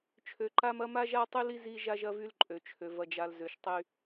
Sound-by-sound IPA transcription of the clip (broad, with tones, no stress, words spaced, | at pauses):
t͡ʃʰø˨ǃa˦mɐ˦ ma˦ʒa˦tˤy˦li˦ zi˦ʒa˦ʒɐ˦vy˦l ǃʼø˨t͡ʃʰø˨ vɐ˨d͡ʒa˨l zø˨ʃtˤy˦